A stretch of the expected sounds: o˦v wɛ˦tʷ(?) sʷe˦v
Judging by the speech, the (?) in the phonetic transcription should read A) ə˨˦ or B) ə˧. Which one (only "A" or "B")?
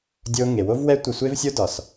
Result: B